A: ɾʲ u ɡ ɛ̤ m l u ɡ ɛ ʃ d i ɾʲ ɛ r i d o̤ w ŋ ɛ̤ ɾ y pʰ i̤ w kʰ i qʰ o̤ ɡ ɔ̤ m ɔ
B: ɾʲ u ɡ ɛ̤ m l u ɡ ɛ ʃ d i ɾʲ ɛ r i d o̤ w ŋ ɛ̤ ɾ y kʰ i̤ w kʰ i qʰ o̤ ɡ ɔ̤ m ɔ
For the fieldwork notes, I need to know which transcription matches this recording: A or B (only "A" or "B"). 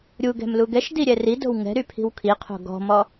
A